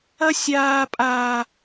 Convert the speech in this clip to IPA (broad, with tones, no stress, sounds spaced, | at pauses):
ɐ˦ sʲ aː˦ pʼ aː˦